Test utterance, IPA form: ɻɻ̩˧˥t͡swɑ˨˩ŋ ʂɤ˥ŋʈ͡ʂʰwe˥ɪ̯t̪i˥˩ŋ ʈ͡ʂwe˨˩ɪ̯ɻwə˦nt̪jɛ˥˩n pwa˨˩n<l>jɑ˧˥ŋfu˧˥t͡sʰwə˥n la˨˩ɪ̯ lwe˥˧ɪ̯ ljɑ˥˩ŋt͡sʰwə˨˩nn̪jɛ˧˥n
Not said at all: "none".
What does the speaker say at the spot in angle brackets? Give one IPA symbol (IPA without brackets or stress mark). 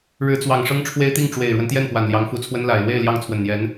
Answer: l